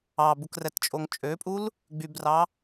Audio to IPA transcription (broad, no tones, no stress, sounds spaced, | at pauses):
ɑ b u k r ɛ t t͡ʃʼ o ŋ t͡ʃʼ ø pʼ u l | ɡ͡b y b r ɑ